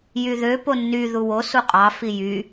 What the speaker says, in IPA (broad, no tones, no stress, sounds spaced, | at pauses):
j y ð ø p o nː y ð u w o s u qʼ ɑ f i j y